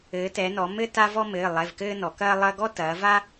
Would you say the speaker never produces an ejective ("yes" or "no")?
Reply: yes